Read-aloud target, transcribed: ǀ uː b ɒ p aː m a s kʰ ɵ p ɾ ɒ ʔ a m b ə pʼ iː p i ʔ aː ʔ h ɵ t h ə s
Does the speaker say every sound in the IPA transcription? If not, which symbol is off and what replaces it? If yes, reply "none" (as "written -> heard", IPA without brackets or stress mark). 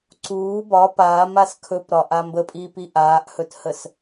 none